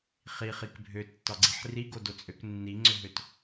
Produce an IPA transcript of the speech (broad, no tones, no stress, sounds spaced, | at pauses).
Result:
χ i χ i k bʱ ø tː ɒ ɡ͡ǀ i ħ r i ɡ o d o t͡sʼ ø k nː i ŋ͡ǀ ʏ ɦ ø t